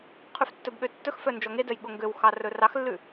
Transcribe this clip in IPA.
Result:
qʰ ʉ f tː ɵ b ɠ ø tː ɵ x f œ n d͡ʒ ɔ ŋ e d œ j ɠ o ŋ ɡ ø w x ɑ r ɵ r ɑ x lː ʉ

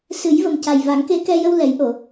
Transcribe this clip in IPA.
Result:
s ɨ˨˩˦ j v ə˨˩ m c a˨˩ j v a˨˩˦ ŋ k e˧˥ k ɛ˧ j ə˧ w l ɛ˨˩˦ j ʔ o˨˩˨

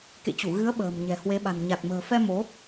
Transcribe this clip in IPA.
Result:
k ḛ˧˨ t͡ɕ u˧˩ ɣ ɨ˨˦ ə̯ ɓ ə̤ː˨˩ m ɲ ɛ̤˨˩ h w e˨˦ ɓ a̤˨˩ n ɲ a˨˩ t̚ m ə̤ː˨˩ f ɛ˧ m o˨˦

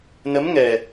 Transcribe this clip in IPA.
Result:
n ə˧˥ m ŋ ɛ˨˩

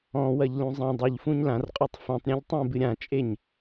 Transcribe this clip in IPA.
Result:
ɔ̃ w ɐ ʎ l ũ zˤ ɛ̃ dˤ o ʎ f ũ ɲ l ã r qʼ o tˤ f ɛ̃ tˤ ɾʲ ã ʎ tˤ ɛ̃ b ɨ ɾʲ ã t͡ʃʼ e ɲ

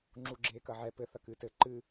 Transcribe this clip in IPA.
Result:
ŋ͡ǁ u ɡ͡ǁ eː k ɐ ʕ ɛ p ɘ θ ɐ k ɨ t ɘ ǃ ɨ

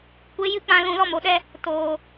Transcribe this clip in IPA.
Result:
kʷ e˨˦ j ɨ˧ k͡p ã˧ l ũ˨ l ɔ˦ m o˨ ɗ ɛ˦ | t oː˨

